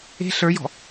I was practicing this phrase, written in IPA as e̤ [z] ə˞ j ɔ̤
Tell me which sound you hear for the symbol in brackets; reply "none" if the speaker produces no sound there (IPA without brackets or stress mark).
ɬ